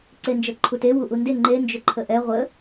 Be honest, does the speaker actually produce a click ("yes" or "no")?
yes